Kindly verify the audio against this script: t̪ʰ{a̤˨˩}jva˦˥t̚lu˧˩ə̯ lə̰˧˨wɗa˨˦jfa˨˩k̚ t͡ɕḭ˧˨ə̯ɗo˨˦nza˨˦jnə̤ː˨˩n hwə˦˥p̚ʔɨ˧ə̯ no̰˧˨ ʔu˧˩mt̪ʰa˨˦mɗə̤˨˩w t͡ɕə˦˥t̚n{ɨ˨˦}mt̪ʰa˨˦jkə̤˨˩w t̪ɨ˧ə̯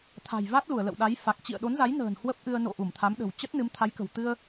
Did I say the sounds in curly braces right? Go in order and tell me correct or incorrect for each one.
correct, correct

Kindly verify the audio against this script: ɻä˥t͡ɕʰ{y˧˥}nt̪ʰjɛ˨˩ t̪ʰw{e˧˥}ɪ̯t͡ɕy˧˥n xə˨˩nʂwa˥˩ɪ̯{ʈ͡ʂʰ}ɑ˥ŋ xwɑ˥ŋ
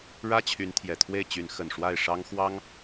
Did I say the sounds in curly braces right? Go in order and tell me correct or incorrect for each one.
correct, incorrect: e˥˩, incorrect: ʂ

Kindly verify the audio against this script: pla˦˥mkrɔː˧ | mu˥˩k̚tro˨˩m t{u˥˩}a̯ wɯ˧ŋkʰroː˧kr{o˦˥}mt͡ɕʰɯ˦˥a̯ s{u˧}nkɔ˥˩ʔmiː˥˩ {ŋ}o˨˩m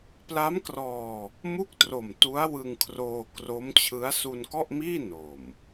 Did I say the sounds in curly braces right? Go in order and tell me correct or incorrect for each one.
incorrect: u˦˥, correct, correct, incorrect: n

